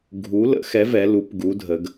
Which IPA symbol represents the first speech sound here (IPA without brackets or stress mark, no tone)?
ɡʱ